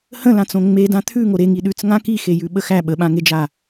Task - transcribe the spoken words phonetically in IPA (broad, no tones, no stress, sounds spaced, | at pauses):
h ə̃ l ã t͡s õ ŋ͡m e d ã t̪ʰ ʉ ŋ o ɾ e ŋ i ɗ ʉ t͡s ŋ ã k i x e j ʉ ɓ ə x æ ɓ ə ɓ ã ŋ e d͡ʒ a